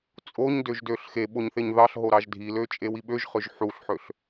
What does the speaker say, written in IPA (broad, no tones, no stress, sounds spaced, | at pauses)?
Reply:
t͡sʼ o ɲ d ø ʒ d ø ɬ x e ɓ o ɲ θ e ɲ ð ɑ ɬ ɦ o ɾ ɑ ʒ dʱ i l ø t͡ʃʼ e w i ɓ ø ʒ χ ø ʒ ħ u ɬ ħ ø ɬ